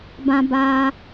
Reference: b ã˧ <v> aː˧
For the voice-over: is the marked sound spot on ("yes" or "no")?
no